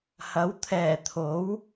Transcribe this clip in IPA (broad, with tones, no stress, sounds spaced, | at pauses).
h ɐ˨˥ w t̪ʰ ɛː˨˩ t̪ʰ o˨˥ w